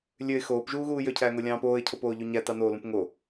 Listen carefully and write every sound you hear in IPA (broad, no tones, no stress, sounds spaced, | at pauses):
lʲ ø ɪ̯ x oː p ʒ uː ɣ uː j ø cʰ æː ŋ o lʲ ɑ̃ː p oː ɪ̯ cʰ o p oː ʎ u ɲ æ t ɑ n oː l ũ p ŋ o